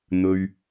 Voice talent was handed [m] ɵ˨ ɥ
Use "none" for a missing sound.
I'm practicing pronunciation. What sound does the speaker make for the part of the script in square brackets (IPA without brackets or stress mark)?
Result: n̪